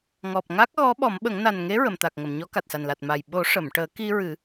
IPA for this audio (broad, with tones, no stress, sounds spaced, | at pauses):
ŋ ɔ˨˩ p̚ ŋ a˦˥ k̚ ɣ ɔ˧˥ ɓ ɔ˨˩˦ m ɓ ə˨˩˦ ŋ n a˨˩ n ŋ e˧˥ ɹ ə˨˩˨ m t̪ a˨˩ k̚ ŋ ə˨˩˨ m ɲ ɔ˧˥ k a˨˩ t̚ s a˨˩ n l a˨˩ t̚ m a˨˩ j ɓ o˨˩˦ ʂ ə˨˩˨ m ʈ əː˨˩˦ k i˧ ɹ ɨ˨˩˦